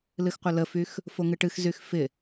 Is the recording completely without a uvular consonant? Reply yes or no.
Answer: no